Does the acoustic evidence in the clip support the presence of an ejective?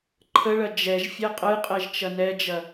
yes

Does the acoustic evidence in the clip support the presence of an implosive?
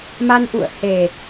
no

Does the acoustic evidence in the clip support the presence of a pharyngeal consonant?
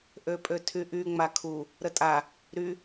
no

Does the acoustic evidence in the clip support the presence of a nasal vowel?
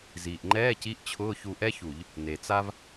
no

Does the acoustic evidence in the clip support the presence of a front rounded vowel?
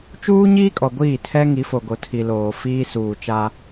no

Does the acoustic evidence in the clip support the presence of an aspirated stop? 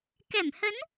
no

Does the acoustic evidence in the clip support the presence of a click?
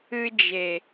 no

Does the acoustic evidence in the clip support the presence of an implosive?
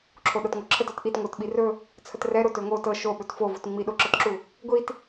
yes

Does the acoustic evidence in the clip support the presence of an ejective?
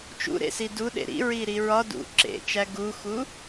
no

